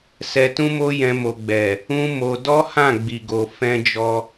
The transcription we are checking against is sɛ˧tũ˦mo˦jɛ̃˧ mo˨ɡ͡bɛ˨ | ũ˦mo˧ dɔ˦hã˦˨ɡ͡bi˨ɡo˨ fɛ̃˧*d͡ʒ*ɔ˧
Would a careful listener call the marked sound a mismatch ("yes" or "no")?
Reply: no